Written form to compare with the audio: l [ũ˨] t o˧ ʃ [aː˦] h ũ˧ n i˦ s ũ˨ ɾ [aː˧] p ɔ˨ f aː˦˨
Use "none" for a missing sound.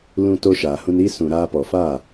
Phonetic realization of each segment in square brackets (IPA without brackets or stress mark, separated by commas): ũ˧, aː˨, aː˧